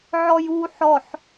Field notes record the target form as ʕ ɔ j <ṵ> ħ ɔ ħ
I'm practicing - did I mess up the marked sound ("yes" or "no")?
yes